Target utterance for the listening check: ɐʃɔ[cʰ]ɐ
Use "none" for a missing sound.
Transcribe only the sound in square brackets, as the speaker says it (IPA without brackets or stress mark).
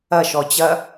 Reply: t͡ɕ